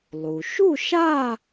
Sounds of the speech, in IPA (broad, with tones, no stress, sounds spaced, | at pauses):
lˠ u˩ ʃ u˥˧ ʃ a˥˧